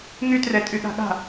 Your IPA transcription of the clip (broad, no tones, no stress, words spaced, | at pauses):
ŋytrɛ tʼyɠa̤ɠa̤